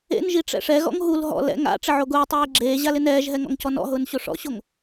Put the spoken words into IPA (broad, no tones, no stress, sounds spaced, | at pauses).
ḛ n ʒ i ʈ͡ʂ ɛ̰ ʂ ɛ ɣ ɔ̰ ŋ ɦ u l ɦ ɔ̰ l ɛ̰ ŋ a̰ ʈ͡ʂ ɪ ʕ o ɡ ʊː tˤ eː ɡ͡ǁ eː ʑ a l ɪ n ɛː ʒ ɦ ɛ ŋ ɔ̰ ŋ c ɔ n ɔ̰ ɦ ʊː n ɕ o ʂ ɔ̰ ɕ o ŋ